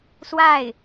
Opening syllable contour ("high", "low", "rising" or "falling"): falling